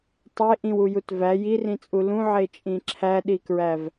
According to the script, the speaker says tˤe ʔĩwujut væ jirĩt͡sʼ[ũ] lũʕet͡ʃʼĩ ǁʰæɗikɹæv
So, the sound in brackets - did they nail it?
no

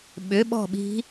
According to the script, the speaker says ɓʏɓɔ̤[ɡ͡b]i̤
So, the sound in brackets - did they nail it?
no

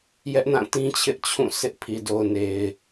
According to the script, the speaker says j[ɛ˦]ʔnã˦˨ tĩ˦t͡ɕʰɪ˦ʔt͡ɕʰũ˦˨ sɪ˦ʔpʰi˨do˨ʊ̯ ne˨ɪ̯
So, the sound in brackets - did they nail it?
yes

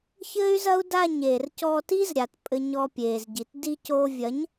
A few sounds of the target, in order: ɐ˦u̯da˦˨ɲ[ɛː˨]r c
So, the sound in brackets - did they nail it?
no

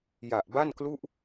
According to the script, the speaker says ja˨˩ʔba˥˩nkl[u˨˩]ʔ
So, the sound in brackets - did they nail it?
no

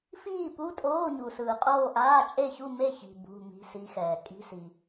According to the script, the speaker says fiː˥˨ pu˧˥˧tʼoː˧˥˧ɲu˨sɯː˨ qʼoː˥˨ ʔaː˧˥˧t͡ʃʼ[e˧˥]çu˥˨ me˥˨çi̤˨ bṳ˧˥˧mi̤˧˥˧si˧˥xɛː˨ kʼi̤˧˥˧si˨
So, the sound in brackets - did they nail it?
no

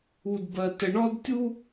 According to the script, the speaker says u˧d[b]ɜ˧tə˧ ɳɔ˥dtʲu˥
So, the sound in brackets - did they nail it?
yes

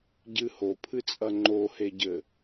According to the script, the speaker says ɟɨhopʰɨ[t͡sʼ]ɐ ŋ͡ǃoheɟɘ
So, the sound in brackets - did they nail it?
yes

